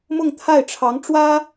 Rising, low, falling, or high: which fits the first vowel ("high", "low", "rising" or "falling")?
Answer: falling